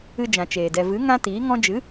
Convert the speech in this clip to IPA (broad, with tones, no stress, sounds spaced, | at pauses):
ɨ˧ d͡ʒ ã˨ t͡ʃ eː˨ d ɛ˨ v ɨ˨˦ ŋ ã˦ t iː˨˦ ŋ ɔ̃˦ d͡ʒ ɨ˨˦